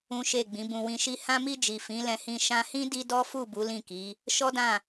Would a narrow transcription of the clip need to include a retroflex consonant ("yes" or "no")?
no